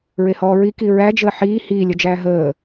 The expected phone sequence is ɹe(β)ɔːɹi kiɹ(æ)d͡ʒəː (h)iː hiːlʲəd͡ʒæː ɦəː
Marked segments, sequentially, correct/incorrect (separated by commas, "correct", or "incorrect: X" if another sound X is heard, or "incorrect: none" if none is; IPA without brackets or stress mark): incorrect: h, correct, incorrect: ħ